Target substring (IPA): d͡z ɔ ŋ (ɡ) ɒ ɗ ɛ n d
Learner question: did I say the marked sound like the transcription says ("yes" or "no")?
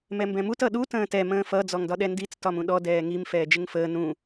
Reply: no